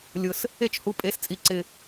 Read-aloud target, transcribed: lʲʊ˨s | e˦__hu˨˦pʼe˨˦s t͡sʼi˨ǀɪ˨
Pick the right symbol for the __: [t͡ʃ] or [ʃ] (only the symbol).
t͡ʃ